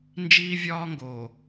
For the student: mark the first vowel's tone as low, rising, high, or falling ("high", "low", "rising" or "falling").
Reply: high